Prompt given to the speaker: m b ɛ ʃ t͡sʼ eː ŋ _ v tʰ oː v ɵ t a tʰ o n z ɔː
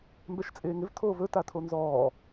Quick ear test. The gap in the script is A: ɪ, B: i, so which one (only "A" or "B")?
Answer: A